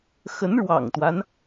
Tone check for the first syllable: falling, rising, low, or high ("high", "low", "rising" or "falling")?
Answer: rising